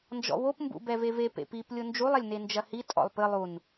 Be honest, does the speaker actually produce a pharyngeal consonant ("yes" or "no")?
no